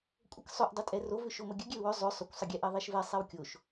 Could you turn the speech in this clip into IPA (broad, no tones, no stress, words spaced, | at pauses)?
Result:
kʷʼəksˤʏʔ dˤʏtʼɛrov ʏʃoməɡʲə ɡʲɛʊ̯wʏ zˤʏ sˤʏkʷsˤəɡʲɛʔɛ ðˤɛʃvɛ sˤɛwkʲoʃ